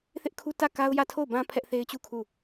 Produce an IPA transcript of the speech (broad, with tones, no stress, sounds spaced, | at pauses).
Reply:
θ ɪ˦ ʔ kʰ u˦ t ä˦˨ k a˦ ʊ̯ j ä˦˨ tʰ o˦˨ ʊ̯ b ã˦ pʰ ɛ˦ ʔ θ e˦ ɪ̯ t͡ɕ u˦˨ kʰ u˦˨